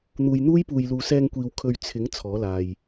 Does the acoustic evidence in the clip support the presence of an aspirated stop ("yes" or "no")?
yes